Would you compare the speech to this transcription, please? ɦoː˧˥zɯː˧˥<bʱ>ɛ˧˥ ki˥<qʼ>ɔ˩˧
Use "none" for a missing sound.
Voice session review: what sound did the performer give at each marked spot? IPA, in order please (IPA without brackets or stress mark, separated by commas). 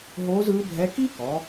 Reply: bʱ, k